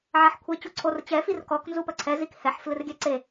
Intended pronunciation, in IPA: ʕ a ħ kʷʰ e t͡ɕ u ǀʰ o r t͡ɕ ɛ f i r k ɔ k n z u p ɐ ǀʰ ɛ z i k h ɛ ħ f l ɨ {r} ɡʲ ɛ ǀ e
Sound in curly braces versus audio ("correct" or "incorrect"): correct